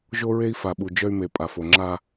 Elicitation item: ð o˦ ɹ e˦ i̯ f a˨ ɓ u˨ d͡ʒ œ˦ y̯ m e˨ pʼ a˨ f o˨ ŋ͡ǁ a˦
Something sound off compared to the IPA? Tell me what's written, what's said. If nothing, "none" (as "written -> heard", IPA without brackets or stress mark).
ð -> ʒ